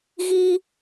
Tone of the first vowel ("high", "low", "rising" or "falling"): high